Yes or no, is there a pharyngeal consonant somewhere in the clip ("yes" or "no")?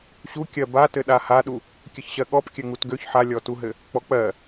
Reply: yes